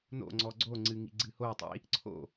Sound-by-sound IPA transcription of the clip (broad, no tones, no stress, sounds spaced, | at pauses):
n o̰ ŋ͡ǀ ɔ ɡ͡ǀ o ŋ͡ǀ ɨ ŋ ḭ ɡ͡ǀ ɨ h o tˤ ḭ | ǀʰ o̰